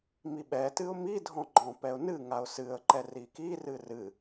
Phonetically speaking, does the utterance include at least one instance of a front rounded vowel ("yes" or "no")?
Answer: no